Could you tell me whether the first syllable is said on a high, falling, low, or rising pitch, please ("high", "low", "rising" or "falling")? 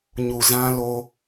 low